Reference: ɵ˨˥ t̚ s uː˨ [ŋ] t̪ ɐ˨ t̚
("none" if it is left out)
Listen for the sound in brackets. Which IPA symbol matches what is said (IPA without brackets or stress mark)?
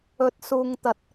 ŋ